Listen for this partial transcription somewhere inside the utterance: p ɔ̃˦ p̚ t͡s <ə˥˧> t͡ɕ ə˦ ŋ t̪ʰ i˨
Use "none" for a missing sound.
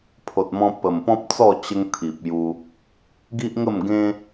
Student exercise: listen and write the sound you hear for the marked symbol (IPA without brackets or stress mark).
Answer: ɔ˥˧